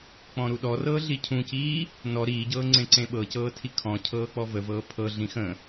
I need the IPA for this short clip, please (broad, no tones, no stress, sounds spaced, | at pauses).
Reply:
k͡p ɔ̃ ɾ u ɗ ɔ r ɤː ɮ i cʰ ũ c iː | n ɔ ɾ iː ɟ ɤː ŋ͡ǀ ẽ ǀ ẽ ɓ ɤ c ɤː tʰ i kʰ ɔ̃ cʰ ɤː k͡p ɔ v ə v ɤː pʰ ɤ ɮ ĩ x ə̃